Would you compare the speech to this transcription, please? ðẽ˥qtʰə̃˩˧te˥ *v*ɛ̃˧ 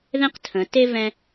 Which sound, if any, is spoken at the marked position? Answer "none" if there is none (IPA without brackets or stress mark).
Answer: v